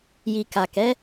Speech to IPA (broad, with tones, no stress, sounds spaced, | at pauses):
j i˨ k a˨ k ɛ˨˦